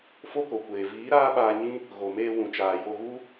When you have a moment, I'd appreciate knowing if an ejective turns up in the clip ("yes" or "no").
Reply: no